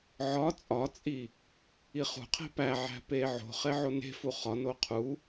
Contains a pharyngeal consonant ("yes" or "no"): yes